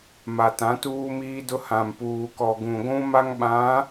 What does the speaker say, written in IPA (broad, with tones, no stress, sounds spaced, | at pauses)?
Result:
m a˨ t ã˨˦ t uː˦ m iː˦ d ʊ˦ h ã˨ m p uː˨ k ɔ˨ ɡ ũ˨ ɡʷ ũ˦ m a˦ ŋ ɓ ã˨˦